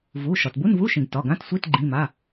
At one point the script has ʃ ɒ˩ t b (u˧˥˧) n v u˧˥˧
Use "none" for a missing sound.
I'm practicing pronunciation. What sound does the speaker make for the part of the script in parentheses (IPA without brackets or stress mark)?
u˧˥˧